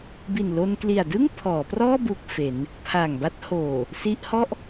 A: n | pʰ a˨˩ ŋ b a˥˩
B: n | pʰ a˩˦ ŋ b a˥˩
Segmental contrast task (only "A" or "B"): A